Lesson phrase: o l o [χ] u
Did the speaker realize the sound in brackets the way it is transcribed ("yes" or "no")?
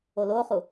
yes